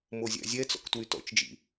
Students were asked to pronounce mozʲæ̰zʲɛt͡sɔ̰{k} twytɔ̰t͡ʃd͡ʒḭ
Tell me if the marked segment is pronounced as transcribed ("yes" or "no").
yes